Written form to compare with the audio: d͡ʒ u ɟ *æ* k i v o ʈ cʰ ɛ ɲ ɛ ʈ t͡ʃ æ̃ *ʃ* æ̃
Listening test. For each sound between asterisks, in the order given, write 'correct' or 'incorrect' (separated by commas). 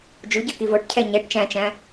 incorrect, incorrect